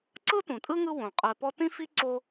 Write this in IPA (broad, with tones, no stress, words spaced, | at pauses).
ǀɯ˥tũ˩tʼɯ˥ŋɯ˦ wõ˩ qʼɛ˨pɔ˦tĩ˥fi˥ ǀo˦